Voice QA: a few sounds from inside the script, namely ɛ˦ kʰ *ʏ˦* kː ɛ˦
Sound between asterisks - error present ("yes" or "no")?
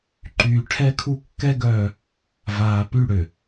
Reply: yes